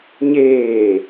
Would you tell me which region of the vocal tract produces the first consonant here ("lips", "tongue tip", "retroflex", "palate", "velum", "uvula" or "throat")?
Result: palate